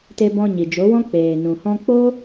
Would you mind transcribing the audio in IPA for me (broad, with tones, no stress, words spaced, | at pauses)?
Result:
te˧bɔ̃˧ɲi˨ d͡ʒo˨˦wɔ̃˦ k͡peː˨nũ˨hɔ̃˦ k͡po˦